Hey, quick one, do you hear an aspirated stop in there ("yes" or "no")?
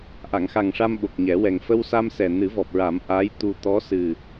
no